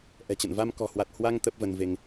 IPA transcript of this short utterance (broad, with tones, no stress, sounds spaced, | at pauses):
ʔ ɛ̤˨˩ t͡ɕ ə̰˧˨ n v a˧ m k ɔ̤˨˩ h w a˨˩ t̚ h w a˧ ŋ t̪ ə˦˥ p̚ v ə˧ n v e˧ ŋ